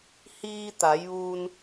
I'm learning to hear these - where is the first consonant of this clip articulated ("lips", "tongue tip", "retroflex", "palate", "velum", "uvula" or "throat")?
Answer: throat